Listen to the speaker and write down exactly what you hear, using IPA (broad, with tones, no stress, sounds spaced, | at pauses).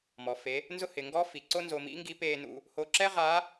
m ɔ˩ f e˩˧ | n z ʊ˥ h ɪ˩˧ ŋ ɡ ɔ˧˥ f i˩ ǀ o˥ n z o˧ m ḭ˥ ŋ ɡ i˧˥ p eː˧ n ṵ˧ | h o˧ ǁ ɛ˥ ʁ a˧˥